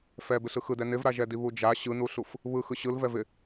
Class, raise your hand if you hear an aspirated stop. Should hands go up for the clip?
no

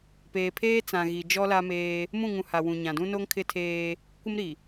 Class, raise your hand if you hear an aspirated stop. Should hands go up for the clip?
yes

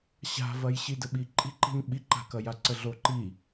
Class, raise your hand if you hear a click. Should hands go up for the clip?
yes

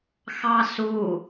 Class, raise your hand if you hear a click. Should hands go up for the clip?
no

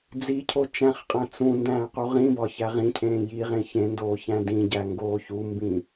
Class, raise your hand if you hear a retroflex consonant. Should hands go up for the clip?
no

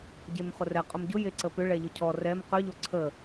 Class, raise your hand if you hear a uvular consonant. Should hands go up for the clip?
yes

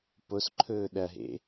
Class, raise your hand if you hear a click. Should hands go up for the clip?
yes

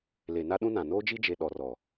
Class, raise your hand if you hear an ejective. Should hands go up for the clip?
no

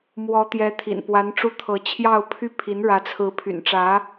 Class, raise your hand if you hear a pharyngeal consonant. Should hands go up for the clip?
no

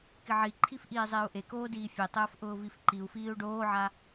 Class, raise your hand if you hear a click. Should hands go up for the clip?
yes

